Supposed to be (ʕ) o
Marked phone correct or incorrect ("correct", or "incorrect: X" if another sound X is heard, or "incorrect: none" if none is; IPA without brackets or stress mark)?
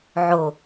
correct